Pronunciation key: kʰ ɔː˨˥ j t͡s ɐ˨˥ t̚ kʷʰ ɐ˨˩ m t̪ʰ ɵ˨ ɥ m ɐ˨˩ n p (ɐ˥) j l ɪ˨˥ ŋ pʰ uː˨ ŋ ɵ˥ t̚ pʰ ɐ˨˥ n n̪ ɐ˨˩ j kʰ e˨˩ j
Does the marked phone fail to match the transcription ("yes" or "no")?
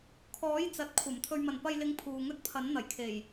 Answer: yes